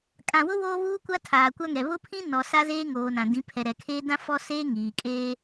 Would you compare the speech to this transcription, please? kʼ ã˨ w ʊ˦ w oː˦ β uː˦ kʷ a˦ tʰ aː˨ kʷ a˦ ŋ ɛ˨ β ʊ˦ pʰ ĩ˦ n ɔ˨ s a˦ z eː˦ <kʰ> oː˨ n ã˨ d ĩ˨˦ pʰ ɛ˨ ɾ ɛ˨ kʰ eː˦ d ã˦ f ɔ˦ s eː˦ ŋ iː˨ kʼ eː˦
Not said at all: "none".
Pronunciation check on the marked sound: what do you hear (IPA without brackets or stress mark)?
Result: ŋ